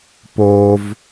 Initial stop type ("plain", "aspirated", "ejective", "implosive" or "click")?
plain